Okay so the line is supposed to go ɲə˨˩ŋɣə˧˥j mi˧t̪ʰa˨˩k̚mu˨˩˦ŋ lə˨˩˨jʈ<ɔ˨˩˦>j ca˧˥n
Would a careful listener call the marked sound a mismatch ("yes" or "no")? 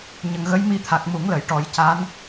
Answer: no